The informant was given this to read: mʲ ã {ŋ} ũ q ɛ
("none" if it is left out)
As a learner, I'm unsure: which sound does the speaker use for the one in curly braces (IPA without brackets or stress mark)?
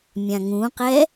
ŋ